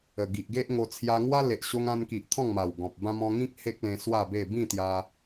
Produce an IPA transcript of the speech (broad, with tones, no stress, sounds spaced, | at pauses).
ə˨˩ ɡ i˨ ʔ ɡ e˦ ʔ ŋ o˧ t͡sʰ j a˧ ŋ w a˦ l e˨ ʔ ɕ o˧ ŋ ã˧ n k i˨ ʔ t̪ʰ ɔ̃˥˧ ŋ m a˨˩ w ɡ ɔ̃˨ p̚ b ã˦ m ɔ̃˧ ŋ ĩ˦ k̚ h e˦ k̚ l ẽ˧ s w a˥˧ b e˥˧ b ĩ˥˧ t̪ j a˧